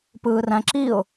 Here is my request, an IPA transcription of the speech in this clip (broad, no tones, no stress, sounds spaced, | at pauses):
p ɯː r æ̃ ǁ i ʊ̯